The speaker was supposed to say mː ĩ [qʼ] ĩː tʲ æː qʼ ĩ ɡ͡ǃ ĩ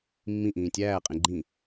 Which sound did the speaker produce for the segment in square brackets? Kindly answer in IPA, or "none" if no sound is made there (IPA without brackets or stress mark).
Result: ʔ